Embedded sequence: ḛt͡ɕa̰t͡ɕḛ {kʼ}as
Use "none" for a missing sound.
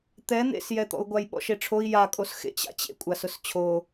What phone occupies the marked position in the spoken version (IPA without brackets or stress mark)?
kʷʼ